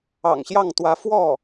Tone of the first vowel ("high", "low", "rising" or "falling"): low